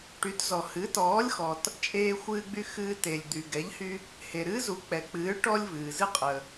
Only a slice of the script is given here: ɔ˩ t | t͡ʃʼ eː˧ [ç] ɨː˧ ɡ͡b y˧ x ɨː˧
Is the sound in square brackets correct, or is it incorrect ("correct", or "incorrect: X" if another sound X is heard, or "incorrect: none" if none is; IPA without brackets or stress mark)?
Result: incorrect: xʷ